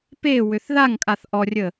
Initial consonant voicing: voiceless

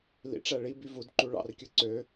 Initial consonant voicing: voiced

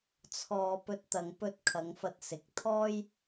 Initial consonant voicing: voiceless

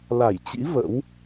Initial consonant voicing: voiced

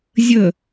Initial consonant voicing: voiced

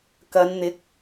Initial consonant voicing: voiceless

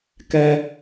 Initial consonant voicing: voiceless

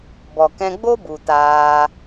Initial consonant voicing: voiced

